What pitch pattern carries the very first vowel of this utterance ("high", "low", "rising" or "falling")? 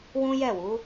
high